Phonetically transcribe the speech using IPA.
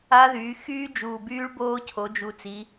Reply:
a˦˥ ð yː˩˧ x yː˦˥ d͡ʒ uː˨˩ b yː˦˥ ɭ b oː˦˥ cʰ o˩˧ d͡ʒ u˨˩ t͡s i˩˧

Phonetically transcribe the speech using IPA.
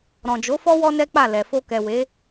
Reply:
ɾ ɔ̃˨ d͡ʒ o˨˦ f ɔ˦ w ɔ˦ n ɛ˦ k͡p a˦˨ l ɛ˨ f o˧ k ɛ˨ w e˨˦

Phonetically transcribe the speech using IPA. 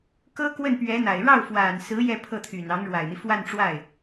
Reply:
k ɤ˥ k w ə˥˩ n p ɥ ɛ˧˥ n̪ a˨˩ ɪ̯ ɻ ɑ˥˩ ʊ̯ f w a˨˩ n s ɹ̩˧˥ j ɛ˥˧ pʰ ɤ˥˩ t̪ʰ y˨˩ n ɑ˧˥ ŋ ɻ w a˨˩ ɪ̯ n̪ i˦ f w a˥˧ n ʈ͡ʂ w a˥˩ ɪ̯

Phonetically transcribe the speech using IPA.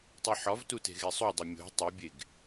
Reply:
tˤ i ħ ɒ v t u t e̤ ɣ e sˤ u dˤ e mʲ o̤ tˤ u bʲ e ɡ

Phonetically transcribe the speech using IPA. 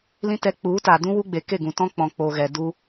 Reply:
l ĩ˦ t ɛ˧ k͡p u˨˦ t a˨ d ũ˦ w u˦ ɡ͡b e˨ k e˦˨ ɡ ũ˨ t ɔ̃˦ k͡p ɔ̃˨ k͡p o˨ ɣ ɛ˨ d u˧

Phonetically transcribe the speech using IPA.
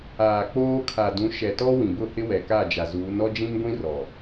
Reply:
aː˨ k͡p oː˦ kʰ a˨ d ũ˨˦ ʃ ɛ˨ t ɔ˦ w ĩ˨ b ʊ˦˨ h ɪ˦ w ɛ˨ k a˦˨ d͡ʒ a˨ z uː˨˦ n ɔ˦ d͡ʒ ĩ˦ m ɡʷ ĩ˦ r ɔ˨

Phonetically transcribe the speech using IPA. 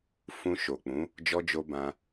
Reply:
f ũ˧ ʃ o˨ k͡p ũ˨˦ | d͡ʒ ɔ˧ d͡ʒ o˧ b ã˧

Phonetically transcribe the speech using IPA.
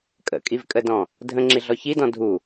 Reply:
kʼ ə̰ kʼ i v kʼ ə d ɔ̃ | dʱ ə̃ ŋ͡ǁ i ɮ ɔ ç i d ɔ̃ dʱ u

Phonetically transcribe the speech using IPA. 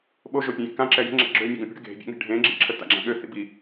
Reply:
ɓ o ʒ o pʲ ẽ j ḭ k ã ǁ ɛ j ə̤ ŋ͡ǁ ɛ̰ ɡ͡ǁ ø mʲ e ɡ õ pʲ o̤ ɽ ə̤ ɡ e̤ bʲ ɛ̰ ŋ e̤ ɖʱ ẽ ɡ͡ǁ ḭ ǁʰ ə t a̰ ɡ͡ǁ ã ɠ ø θ ḭ b i

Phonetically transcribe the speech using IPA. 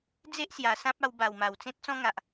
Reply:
d͡z e˦ ʔ s j a˨˩ s ã˦ p̚ a˧ w b a˨˩ w m a˨˩ w t͡s ẽ˦ t̚ t͡s ɔ̃˦ ŋ a˨ ʔ

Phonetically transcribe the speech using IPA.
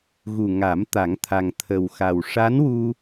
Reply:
ɣ u˨˩ ŋ a˨˩˦ m t̪ a˨˩˦ ŋ t̪ʰ a˨˩ ŋ t̪ʰ ə˨˩ w x a˨˩ w ʂ a˧˥ n w u˧

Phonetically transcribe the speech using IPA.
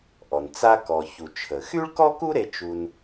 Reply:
ʔ ɔ˩ n t͡s a˧ k ɔ˩ ç u˩ t͡ʃʰ ə˩ x y˥ ɭ k ɔ˥ k u˥ ɾ e˧ t͡ʃ u˧ n

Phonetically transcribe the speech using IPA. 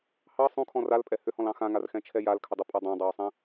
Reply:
h ɑ sˤ ũ kʰ ɔ̃ r a l pʼ ɛ h ʏ h ɔ̃ l ɑ̃ x ã ŋ a r x ɛ̃ t͡ʃʰ ɛ j a l kʰ ʏ dˤ u pʼ a dˤ ã dˤ ɑ w sˤ ɛ̃

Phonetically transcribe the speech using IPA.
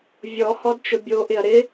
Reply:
vʲ ɔ h ɔ d t͡ʃ ʊ bʲ o ʔ ɪ ɐ̯ ɾ ɪ

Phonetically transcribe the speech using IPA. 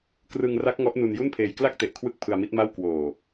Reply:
k r ɯ˧ ŋ r a˦˥ k̚ ŋ ɔ˦˥ ʔ n u˧ n j u˥˩ n pʰ eː˧ j k l a˥˩ k̚ t e˨˩ ʔ kʰ w ɯ˦˥ k̚ pʰ ɯ˧ a̯ m i˦˥ t̚ m a˥˩ w k w oː˨˩

